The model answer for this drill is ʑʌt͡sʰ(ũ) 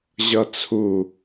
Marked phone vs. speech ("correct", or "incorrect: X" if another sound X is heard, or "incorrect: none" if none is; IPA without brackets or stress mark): incorrect: u